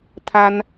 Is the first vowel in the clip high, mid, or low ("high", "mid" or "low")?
low